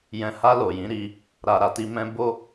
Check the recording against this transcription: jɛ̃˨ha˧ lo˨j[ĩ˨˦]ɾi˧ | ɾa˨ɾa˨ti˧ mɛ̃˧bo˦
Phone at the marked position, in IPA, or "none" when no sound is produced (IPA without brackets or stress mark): ĩ˨˦